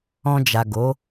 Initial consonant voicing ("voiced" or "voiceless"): voiced